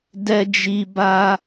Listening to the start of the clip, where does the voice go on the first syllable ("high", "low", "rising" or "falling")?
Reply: high